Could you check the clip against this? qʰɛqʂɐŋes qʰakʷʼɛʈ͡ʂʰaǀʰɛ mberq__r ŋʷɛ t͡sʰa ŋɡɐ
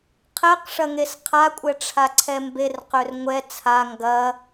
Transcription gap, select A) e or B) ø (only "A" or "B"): B